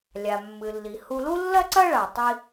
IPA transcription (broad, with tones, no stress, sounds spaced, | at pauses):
lʲ a˩ mː ɨ˩ lː i˩ h u˧ l u˥ lː ɐ˥ ǀ ɐ˥ ɭ a˩ tˤ i˧